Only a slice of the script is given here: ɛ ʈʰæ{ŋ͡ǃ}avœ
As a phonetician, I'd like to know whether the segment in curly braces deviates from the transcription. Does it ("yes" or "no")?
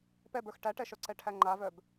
no